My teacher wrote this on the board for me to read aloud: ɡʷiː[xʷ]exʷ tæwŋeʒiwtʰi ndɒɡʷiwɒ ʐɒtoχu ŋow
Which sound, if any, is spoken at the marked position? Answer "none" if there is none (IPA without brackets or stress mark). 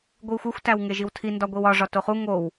xʷ